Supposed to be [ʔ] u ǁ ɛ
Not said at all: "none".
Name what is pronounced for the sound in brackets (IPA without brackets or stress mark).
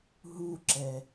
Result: ɦ